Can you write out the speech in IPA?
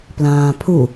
plãːpʰu

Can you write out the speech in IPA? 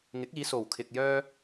ŋɪ˨˥k̚iː˨˧so˨˩wkʰɪ˨k̚ jœː˧

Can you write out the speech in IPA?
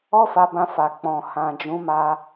ɔ˦fa˧bã˧fa˨ k͡pɔ̃˨ hã˨d͡ʒũ˨˦ma˧

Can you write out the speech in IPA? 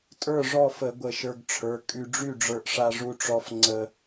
tʼə˞˥˨ʐɔ˥˨fə˧˩˧ ɡʷə˧˩ʃə˞˧ɡʈ͡ʂʰə˞˩˧˩ kʼy˧ɖ͡ʐy˥˨ɖ͡ʐə˞˧ʔ ʂa˧ʐu˧ʈ͡ʂɔ˧f ŋ͡ǀə˧

